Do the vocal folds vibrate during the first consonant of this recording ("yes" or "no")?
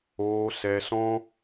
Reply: no